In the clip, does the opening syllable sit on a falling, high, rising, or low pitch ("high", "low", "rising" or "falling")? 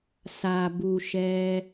low